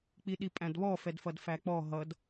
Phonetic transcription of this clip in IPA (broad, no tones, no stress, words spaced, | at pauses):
k͡piɗipʼæ̃dβɔ fɛdfʌdfæk͡pɔ ɦʌd